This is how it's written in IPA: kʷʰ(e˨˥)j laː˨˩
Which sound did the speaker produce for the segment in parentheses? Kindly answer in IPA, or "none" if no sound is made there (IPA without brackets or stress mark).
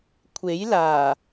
e˨˥